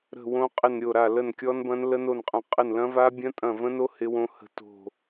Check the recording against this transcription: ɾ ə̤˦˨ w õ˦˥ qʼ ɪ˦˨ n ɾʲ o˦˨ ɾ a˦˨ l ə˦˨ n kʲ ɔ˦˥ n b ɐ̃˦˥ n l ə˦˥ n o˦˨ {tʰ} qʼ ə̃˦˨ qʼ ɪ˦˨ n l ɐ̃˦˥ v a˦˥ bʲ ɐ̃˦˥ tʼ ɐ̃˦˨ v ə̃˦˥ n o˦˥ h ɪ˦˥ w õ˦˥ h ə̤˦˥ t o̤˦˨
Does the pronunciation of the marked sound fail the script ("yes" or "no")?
yes